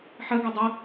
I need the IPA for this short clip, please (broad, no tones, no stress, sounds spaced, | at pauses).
ħ ɜ ɡ ɜ dˤ ə